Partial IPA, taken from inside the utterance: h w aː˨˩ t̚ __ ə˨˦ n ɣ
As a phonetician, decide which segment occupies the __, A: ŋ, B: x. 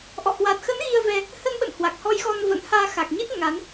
B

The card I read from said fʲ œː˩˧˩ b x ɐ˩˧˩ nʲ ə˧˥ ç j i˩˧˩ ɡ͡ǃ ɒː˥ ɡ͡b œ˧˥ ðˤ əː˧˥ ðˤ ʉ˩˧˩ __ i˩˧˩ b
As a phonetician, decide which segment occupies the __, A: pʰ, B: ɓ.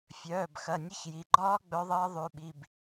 B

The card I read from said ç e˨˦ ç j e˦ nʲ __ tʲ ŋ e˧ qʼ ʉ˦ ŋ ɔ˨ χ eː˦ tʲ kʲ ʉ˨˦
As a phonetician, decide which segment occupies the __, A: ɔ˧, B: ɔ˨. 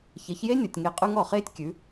B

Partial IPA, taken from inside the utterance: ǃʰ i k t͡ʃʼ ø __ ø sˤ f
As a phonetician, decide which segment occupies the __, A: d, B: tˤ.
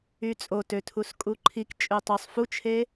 B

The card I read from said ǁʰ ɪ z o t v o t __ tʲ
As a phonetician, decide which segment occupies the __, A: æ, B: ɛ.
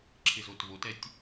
B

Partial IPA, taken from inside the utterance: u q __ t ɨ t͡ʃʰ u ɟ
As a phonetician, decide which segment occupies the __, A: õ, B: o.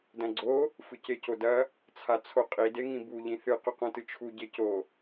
A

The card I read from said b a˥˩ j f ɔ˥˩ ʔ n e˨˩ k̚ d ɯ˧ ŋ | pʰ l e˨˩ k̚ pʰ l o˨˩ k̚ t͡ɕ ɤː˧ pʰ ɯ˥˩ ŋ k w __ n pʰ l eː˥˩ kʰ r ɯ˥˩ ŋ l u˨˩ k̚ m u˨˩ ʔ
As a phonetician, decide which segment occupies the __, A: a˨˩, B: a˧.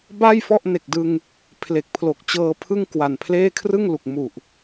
A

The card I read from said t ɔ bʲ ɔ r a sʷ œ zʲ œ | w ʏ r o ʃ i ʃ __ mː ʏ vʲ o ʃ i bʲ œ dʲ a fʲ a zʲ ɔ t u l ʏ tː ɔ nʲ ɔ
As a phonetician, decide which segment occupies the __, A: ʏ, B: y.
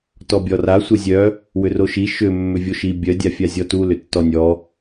A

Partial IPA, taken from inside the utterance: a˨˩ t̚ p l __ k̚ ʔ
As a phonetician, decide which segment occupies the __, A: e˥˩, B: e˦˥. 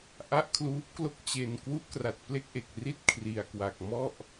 A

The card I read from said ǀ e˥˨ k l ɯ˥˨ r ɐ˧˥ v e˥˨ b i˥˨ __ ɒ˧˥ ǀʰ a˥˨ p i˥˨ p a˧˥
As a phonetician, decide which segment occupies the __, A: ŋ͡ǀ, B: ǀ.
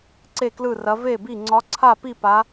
A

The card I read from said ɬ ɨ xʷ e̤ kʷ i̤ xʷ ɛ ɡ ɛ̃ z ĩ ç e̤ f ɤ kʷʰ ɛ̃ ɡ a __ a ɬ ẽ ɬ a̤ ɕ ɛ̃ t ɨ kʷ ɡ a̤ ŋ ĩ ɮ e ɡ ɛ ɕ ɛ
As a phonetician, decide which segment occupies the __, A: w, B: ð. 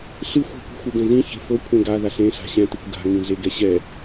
B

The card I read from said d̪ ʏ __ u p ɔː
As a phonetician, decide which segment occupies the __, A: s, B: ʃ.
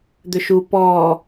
B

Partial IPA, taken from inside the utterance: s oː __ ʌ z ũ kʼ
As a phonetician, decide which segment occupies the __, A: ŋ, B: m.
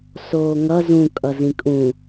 A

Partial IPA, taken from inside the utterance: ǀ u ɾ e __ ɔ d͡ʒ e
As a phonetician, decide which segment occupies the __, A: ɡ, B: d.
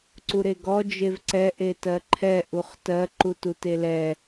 A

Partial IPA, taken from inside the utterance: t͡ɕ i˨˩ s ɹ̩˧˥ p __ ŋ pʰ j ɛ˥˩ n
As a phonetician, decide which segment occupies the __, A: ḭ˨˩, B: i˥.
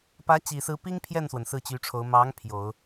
B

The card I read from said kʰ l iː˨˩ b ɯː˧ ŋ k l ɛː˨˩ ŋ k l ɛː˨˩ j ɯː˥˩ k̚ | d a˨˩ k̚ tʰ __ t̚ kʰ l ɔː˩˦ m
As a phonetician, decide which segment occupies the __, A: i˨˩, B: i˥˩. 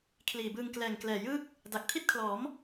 B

